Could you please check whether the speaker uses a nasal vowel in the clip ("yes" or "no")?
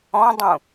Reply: yes